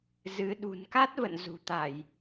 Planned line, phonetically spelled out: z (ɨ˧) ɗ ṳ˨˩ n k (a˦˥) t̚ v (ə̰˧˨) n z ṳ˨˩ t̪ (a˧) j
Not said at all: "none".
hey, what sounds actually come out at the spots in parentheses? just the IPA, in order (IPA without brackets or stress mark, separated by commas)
ɨ˨˦, a˦˥, ə̰˧˨, a˧˩˨